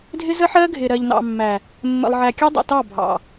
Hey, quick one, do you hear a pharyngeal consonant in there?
yes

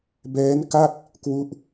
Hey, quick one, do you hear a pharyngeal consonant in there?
no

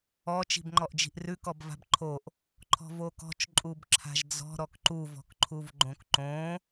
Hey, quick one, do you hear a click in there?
yes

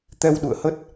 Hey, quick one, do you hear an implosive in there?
yes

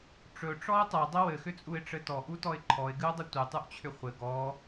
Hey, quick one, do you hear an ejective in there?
yes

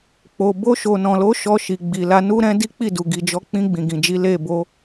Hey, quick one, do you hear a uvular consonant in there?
no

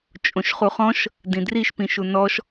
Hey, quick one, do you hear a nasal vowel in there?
yes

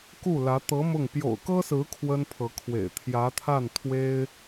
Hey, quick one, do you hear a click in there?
no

